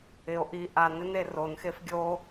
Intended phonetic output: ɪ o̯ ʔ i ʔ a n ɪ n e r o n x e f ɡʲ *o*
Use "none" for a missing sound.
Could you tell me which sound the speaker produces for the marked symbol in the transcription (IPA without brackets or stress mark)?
o